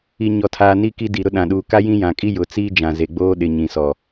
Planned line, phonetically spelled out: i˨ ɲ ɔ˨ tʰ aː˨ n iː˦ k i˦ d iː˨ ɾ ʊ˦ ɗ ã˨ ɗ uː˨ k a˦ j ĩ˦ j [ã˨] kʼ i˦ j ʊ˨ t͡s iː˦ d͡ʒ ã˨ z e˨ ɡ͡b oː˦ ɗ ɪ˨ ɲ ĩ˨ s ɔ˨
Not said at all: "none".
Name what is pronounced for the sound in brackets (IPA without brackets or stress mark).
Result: ã˨